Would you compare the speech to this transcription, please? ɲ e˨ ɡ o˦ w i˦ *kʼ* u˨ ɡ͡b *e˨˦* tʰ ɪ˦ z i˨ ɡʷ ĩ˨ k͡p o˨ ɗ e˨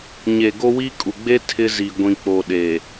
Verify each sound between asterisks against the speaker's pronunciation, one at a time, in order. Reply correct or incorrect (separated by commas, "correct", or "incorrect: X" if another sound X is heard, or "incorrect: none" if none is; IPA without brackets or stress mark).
correct, incorrect: e˦